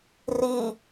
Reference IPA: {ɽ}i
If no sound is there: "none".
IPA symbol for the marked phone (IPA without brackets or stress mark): r